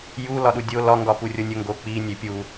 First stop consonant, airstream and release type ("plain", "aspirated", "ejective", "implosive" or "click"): implosive